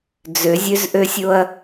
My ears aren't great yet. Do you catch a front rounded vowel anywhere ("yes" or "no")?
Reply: yes